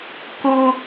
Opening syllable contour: high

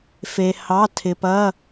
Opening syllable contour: low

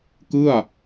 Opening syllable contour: falling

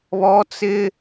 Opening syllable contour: high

